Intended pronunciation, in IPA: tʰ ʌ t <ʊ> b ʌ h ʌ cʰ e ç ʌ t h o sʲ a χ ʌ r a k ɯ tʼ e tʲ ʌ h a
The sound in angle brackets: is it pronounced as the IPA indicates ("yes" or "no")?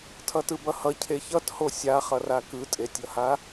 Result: no